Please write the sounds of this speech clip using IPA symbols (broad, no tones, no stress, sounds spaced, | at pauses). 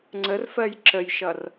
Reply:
ŋ͡ǀ ə r f ɜ j ǁ ə j ʃ ʌ r